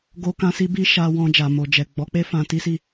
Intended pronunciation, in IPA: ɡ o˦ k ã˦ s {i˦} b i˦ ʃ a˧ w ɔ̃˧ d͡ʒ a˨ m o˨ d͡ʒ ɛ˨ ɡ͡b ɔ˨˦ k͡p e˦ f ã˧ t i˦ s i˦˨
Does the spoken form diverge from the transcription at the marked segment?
no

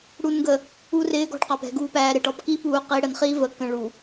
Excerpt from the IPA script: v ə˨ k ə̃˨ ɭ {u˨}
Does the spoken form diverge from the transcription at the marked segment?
no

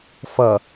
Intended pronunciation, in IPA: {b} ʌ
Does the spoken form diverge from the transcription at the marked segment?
yes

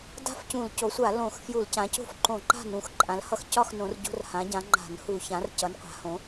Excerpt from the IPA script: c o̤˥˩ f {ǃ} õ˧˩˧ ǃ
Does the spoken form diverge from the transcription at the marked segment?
no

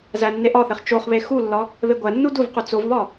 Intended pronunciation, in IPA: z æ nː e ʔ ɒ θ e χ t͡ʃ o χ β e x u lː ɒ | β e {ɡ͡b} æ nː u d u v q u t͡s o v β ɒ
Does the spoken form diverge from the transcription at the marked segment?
yes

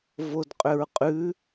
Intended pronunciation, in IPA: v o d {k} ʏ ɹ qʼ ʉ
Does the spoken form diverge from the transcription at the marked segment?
yes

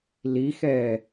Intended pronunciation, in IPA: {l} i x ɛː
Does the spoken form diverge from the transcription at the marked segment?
no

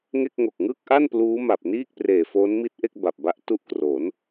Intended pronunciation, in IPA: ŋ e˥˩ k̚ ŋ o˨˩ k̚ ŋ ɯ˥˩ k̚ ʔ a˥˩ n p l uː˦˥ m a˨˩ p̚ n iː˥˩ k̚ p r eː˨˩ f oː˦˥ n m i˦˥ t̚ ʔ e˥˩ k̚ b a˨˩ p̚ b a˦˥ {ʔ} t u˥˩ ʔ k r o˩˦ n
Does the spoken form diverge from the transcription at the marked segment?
no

